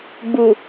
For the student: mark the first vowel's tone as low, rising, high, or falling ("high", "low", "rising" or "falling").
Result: low